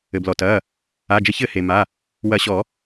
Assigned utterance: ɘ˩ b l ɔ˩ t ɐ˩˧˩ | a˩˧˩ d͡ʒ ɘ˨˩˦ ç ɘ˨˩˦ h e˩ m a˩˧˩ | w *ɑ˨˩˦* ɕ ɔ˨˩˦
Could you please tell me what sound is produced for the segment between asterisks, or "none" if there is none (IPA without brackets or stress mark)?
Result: ɐ˨˩˦